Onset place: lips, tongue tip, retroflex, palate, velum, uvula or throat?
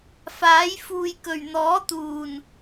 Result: lips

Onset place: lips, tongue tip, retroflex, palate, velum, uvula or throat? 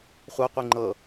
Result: uvula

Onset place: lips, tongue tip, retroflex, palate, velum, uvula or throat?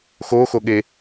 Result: velum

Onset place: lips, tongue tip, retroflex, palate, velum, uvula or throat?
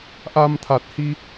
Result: throat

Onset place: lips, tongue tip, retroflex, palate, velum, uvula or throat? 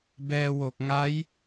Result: lips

